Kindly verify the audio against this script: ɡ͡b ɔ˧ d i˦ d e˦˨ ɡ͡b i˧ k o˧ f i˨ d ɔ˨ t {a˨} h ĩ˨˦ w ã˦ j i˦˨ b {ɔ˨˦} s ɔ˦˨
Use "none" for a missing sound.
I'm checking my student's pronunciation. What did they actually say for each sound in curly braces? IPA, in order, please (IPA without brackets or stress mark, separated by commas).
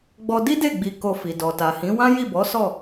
a˨, ɔ˨˦